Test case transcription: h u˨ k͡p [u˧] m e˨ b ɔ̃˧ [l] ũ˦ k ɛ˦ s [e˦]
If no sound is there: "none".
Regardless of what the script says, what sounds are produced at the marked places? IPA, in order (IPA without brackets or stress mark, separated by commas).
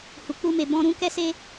u˧, ɾ, e˦